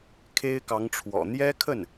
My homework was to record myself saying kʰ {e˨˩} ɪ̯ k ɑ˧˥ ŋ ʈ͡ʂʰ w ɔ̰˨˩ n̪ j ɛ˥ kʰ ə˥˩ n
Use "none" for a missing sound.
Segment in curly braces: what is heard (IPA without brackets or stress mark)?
e˥